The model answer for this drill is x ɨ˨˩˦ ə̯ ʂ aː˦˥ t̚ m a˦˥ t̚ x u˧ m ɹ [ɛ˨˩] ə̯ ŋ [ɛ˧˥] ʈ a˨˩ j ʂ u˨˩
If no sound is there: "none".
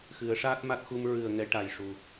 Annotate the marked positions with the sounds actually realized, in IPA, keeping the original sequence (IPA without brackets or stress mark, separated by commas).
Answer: ɨ˨˩, ɛ˧˥